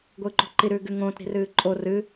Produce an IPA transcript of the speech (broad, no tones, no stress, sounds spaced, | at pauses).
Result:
ɡʷ ɨː ǃ o̤ ǃ i ɾ ʉː ɡ ʉ ŋ õː t ɾ i̤ r ɨː ǃʼ o r ɨ